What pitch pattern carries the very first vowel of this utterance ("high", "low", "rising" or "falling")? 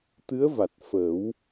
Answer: rising